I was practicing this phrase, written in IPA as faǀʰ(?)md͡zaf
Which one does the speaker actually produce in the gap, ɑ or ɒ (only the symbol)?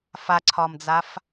ɒ